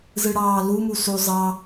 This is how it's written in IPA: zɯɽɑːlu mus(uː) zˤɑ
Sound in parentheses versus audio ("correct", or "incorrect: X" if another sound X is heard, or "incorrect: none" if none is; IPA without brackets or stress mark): incorrect: u